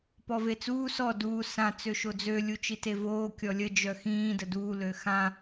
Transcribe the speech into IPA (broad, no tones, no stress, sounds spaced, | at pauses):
p ɔ v e t͡s uː s ɔ d uː s ã t͡s ø ʃ o d͡z ø lʲ u t͡ʃ i t e v oː kʲ ɔ lʲ ə d͡ʒ œ x ĩː d ə d uː l ø x ã